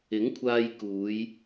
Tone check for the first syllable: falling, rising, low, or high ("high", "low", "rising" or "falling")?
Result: rising